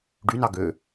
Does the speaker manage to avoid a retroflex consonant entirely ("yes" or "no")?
no